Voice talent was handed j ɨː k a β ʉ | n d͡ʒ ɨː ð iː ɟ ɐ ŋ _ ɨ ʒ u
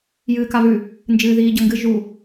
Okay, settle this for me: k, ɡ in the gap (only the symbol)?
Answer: ɡ